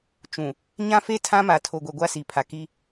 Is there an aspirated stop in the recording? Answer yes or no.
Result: yes